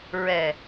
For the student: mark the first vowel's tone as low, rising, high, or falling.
low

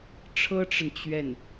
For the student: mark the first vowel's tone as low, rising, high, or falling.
high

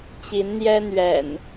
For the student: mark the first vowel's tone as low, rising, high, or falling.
rising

